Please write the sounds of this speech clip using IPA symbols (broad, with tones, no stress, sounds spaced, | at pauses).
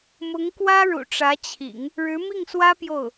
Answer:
m ʊ˧˥ ŋ k w ä˥ ɻ ṵ˨˩ ʈ͡ʂ ä˧˥ t͡ɕʰ ḭ˨˩˦ ŋ | ɻ ɻ̩˧˥ m i˥˩ ŋ s w ä˥ p j o˥˩ ʊ̯